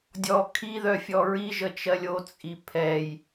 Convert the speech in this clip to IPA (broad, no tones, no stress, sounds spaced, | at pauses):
dʲ ɔ kʰ i ð œ fʲ ɔ ɹ i ʒ ə t͡ʃ ɜ lʲ o t͡sʼ i pʰ ɛ j